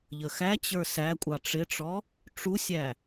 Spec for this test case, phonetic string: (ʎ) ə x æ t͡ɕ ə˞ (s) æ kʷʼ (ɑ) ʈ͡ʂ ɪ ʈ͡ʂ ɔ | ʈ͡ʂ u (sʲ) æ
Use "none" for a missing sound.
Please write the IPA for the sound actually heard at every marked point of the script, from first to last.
ʎ, s, ɑ, sʲ

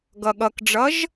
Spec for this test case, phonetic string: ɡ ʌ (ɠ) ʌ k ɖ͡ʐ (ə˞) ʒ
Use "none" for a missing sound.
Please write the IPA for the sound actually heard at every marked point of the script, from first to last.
ɠ, ʌ

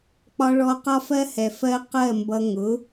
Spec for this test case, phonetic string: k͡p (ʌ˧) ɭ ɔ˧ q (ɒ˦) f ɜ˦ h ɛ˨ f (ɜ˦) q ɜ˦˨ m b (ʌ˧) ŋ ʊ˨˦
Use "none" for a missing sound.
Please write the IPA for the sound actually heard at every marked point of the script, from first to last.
ɒ˧, ɒ˦, ɜ˦, ʌ˧

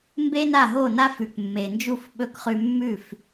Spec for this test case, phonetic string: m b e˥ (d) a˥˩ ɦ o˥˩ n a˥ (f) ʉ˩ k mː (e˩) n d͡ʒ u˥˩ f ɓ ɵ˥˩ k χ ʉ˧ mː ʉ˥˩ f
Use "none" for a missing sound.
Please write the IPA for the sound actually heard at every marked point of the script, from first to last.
n, f, e˩

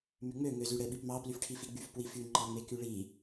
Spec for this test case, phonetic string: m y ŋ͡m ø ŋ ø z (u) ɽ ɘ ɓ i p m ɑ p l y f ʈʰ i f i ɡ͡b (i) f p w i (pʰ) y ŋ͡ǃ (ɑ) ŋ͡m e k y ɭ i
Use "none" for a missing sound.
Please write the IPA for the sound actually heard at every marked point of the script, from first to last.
y, y, f, ɑ

